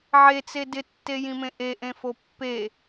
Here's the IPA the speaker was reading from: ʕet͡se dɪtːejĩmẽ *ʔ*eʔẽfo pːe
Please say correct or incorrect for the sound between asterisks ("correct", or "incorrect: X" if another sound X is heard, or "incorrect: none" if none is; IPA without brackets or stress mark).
correct